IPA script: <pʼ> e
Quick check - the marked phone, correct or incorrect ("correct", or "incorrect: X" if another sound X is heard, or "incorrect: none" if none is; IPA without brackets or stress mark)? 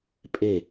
correct